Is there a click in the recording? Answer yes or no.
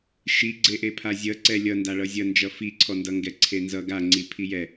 yes